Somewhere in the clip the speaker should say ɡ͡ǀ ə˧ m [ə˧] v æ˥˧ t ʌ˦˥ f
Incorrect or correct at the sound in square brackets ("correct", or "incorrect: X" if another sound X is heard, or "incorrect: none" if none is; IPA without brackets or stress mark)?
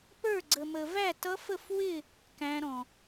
correct